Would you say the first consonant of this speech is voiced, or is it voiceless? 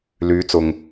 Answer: voiced